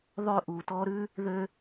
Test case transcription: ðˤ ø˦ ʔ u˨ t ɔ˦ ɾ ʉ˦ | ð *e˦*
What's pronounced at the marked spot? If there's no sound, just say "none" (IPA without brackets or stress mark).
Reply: ø˦